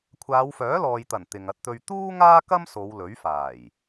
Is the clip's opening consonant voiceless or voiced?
voiceless